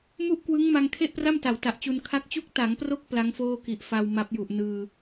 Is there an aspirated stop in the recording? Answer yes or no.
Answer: yes